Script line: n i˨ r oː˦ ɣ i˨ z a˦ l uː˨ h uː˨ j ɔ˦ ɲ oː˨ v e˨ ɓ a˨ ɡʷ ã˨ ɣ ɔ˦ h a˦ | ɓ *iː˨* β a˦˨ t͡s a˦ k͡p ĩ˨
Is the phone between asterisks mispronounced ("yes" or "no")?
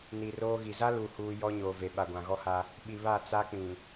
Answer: yes